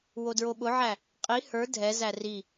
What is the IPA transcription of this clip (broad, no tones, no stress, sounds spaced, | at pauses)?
w o d ɹ o ɓ ʊ ʕ æ | qʼ i h ə˞ dʱ ɛ z æ r i